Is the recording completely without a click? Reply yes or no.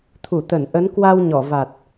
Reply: yes